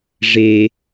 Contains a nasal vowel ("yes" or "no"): no